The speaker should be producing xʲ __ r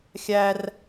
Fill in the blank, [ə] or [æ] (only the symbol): æ